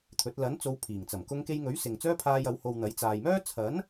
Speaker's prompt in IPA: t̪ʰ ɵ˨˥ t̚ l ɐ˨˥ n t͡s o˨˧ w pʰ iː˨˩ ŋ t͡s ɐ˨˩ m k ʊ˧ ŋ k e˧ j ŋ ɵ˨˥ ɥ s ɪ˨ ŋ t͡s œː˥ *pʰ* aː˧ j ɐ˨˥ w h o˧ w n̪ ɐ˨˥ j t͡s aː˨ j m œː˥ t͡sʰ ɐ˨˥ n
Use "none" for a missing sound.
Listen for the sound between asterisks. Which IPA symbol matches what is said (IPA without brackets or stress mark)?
pʰ